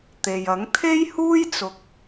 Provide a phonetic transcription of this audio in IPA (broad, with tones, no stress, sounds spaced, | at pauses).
t̪ e˨ j ɐ˨˥ ŋ t̪ʰ e˥ j h uː˥ j t͡s ʊ˨ k̚